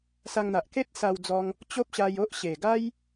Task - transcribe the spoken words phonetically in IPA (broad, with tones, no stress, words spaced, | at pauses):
sa˧ŋn̪a˨ʔ ke˦t̚sa˧w d͡zɔ˧ŋ | t͡ɕo˦p̚ɕa˧j o˦ʔɕe˨˩ ɡa˦j